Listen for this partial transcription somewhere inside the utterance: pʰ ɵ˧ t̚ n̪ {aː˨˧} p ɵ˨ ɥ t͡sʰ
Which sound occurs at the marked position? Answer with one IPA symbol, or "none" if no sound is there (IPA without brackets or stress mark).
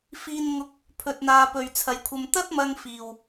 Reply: aː˧